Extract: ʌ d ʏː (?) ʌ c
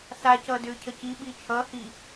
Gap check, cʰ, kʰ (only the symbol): cʰ